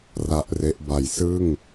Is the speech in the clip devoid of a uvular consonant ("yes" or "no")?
yes